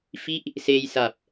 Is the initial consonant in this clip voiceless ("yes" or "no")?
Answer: yes